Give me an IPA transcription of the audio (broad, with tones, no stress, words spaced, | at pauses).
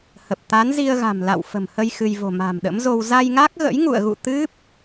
hə˨˩p̚ t̪a˨˦nzi˧ə̯ɣa̤˨˩mla̰˧˨w fə̤˨˩mhə˧j xɨ˧j vo̤˨˩ ma̤˨˩mɗə̰˧˥mzo˧w za˧jŋa˦˥k̚ɣə̰˧˥j ŋṵ˧˨ə̯ɣṵ˧˨ t̪ɨ˦˥p̚